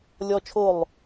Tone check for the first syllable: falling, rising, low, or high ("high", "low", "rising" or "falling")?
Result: high